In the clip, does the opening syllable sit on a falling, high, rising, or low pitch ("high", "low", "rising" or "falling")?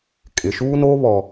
low